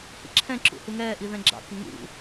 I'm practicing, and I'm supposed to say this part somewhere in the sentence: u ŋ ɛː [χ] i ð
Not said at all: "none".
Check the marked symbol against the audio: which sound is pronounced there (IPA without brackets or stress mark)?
ʔ